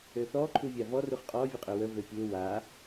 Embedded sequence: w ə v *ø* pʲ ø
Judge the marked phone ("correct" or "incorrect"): correct